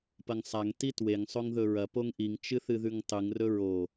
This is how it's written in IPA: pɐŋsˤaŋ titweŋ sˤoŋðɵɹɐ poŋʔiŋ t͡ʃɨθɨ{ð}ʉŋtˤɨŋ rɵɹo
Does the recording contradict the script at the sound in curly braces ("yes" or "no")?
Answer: no